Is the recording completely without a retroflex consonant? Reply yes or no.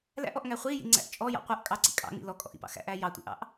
yes